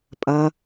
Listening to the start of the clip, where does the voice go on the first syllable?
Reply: high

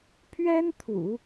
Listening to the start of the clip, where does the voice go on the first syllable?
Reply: high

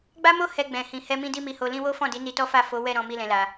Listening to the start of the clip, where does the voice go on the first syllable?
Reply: high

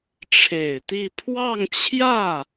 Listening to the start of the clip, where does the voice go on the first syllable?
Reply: low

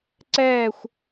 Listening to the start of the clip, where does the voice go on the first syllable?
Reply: falling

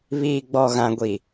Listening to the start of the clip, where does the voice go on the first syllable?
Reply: low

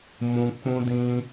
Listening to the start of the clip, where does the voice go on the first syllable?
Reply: high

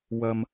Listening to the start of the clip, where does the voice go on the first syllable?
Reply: low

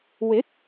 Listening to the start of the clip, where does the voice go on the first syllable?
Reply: rising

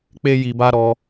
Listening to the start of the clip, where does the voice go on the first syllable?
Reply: high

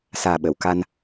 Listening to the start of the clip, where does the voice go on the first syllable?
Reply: low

